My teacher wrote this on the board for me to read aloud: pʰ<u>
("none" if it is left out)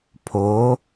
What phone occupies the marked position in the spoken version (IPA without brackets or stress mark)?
o